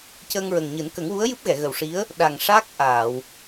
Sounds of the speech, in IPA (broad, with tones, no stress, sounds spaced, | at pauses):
c əː˧ ŋ ɹ ə˨˩ ŋ ɲ ɨ˨˩˦ n k ə˨˩˦ ŋ w u˧˥ ə̯ j ɨ˦˥ p̚ ɣ ɛ˨˩˨ ɣ ə˨˩ w ʂ i˧˥ ə̯ | ɗ a˨˩ ŋ ʂ a˦˥ k̚ ʔ aː˨˩˨ w